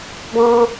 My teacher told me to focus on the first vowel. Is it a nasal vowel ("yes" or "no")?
yes